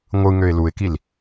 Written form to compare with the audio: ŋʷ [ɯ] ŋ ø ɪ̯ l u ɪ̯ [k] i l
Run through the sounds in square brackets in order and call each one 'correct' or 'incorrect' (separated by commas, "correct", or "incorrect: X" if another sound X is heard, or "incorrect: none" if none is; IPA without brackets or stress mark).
correct, correct